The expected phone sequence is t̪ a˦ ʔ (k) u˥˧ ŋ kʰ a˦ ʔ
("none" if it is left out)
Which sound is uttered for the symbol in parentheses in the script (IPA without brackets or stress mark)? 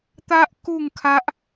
k